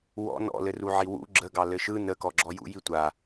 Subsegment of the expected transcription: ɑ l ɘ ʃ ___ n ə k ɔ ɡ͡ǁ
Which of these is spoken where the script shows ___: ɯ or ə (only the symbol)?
ɯ